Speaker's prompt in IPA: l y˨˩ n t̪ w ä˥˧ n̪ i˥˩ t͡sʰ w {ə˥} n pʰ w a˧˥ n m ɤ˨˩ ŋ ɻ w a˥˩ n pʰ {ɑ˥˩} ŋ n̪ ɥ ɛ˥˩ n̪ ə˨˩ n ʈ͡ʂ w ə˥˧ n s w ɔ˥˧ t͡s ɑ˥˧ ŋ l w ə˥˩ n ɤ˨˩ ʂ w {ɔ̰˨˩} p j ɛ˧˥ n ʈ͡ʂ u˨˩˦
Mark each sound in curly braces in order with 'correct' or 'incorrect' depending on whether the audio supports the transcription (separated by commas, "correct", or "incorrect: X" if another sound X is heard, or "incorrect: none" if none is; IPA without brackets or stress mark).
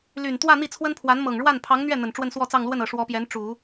correct, incorrect: ɑ˧˥, incorrect: ɔ˧˥